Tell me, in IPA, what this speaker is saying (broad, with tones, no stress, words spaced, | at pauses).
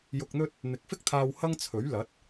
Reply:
jʊ˧k̚n̪ɵ˥t̚ | n̪ɪ˨˥k̚fɪ˥k̚t̪ʰaː˧w hɐ˥ŋt͡sʰɵ˨˥ɥ lɐ˨˥t̚